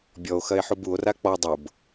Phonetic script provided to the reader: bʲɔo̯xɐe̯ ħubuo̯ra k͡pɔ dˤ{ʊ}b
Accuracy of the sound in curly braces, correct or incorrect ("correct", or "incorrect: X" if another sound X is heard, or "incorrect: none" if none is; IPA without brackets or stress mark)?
correct